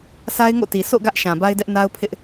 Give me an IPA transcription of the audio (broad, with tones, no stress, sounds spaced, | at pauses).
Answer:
s a˦ ɪ̯ ŋ o̰˦˨ t i˨ s o̰˦˨ ɡ ä˦ ʔ ʃ ã˨ b a˦ ɪ̯ d ɛ˦ ʔ n a˦ ʊ̯ pʰ ɪ˦ ʔ